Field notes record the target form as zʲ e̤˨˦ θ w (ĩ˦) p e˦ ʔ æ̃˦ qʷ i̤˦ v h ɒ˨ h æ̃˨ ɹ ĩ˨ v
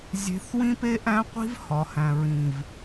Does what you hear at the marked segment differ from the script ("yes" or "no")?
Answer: no